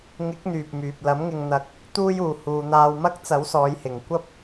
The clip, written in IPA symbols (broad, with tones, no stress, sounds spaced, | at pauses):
ŋ ɪ˨˥ k̚ n̪ yː˨ p̚ m yː˨ p̚ l ɐ˨˥ m ŋ ɪ˧ ŋ n̪ ɐ˧ k̚ | t̪ uː˧ j uː˨ h uː˨ n̪ aː˧ w m ɐ˥ k̚ t͡s ɐ˨˥ w s ɔː˨˧ j h ɪ˨ ŋ kʷ ɐ˥ p̚